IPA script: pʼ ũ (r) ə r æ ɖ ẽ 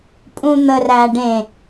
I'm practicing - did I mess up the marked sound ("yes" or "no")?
yes